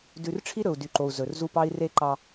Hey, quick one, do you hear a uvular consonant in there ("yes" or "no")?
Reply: no